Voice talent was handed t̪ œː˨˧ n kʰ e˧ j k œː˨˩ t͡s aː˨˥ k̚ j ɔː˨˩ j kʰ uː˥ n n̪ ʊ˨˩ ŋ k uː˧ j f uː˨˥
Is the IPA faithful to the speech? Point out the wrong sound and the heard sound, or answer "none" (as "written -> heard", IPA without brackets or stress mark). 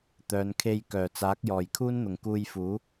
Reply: none